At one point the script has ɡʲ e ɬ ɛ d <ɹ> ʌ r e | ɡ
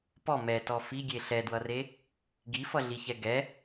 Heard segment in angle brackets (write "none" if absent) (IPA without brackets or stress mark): w